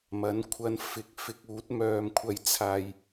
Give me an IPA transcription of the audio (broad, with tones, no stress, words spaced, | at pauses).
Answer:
mɐ˨˥nkʷʰɐ˧n fɪ˨˥k̚ fɪ˧k̚uː˨˥t̚mœː˧mkʷʰɐ˧j t͡sʰaː˧j